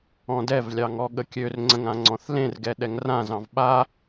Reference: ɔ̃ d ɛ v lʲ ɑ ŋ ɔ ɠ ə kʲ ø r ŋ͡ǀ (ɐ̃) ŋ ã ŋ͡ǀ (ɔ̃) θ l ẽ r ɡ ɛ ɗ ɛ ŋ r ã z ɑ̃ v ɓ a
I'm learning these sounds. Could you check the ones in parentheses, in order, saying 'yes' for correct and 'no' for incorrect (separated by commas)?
no, yes